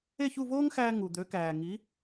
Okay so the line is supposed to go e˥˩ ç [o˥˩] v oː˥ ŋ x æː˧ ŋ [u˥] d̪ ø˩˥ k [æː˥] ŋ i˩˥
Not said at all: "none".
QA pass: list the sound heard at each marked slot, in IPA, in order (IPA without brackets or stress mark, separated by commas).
u˥˩, u˩, æː˩